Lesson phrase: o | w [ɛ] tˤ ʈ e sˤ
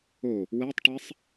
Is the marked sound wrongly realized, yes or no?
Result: no